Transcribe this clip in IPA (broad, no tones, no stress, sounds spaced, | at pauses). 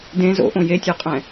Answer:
d ẽ z o̰ ʔ õ j e tʲ o qʼ ɛ̃